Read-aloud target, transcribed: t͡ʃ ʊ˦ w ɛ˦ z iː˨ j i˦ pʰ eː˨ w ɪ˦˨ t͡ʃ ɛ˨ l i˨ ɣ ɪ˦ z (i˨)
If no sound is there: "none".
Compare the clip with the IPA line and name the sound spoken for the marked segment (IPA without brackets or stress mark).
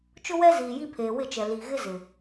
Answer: ɪ˨